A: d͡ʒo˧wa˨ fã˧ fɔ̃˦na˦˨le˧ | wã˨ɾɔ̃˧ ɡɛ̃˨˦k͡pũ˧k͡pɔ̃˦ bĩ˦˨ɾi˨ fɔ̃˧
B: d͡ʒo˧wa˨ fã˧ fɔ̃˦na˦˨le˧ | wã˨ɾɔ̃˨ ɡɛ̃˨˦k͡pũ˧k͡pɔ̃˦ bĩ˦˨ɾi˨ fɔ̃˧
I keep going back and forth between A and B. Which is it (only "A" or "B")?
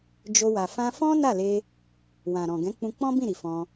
B